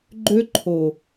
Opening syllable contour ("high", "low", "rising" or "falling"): high